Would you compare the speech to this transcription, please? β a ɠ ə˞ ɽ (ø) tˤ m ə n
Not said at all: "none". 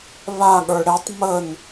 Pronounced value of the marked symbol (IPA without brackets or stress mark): ɛ